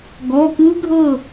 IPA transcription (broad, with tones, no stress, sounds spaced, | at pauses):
ɡ ɔ˩˧˩ k ɯ˦˥ ɡʱ ɤ˥˨